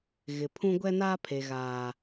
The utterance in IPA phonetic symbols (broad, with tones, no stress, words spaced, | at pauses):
ɣɪ˨pʰũ˦ ɡʷɛ˦naː˦ pʰe˨ɣaː˨